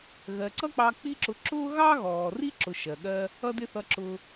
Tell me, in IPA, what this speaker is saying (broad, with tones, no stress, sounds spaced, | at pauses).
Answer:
ɣ ɜ˨ ǀ ʌ˦ k͡p ɑ˧ k͡p i˦ ǁ ʊ˧ ǁ ʊː˦ ɣ ɑ˦ ɣ ɔː˨ r i˦ ǁ ʊ˧ ʃ ɜ˨ ɠ ɜ˦ | ʌ˦ d ɪ˦ θ ʌ˧ ǁ ʊ˧